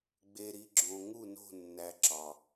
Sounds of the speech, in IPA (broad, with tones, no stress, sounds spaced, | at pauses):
ɡ͡b e˨ ɾ i˨ ɡ͡ǁ õ˨ ŋ u˦˨ n o̤˦˨ nː æ˨ ǁ ɒ˨